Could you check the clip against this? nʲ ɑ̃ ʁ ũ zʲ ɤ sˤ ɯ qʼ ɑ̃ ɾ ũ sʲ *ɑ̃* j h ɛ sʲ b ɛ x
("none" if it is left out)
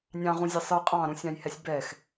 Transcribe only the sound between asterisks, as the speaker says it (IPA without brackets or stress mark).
ɑ̃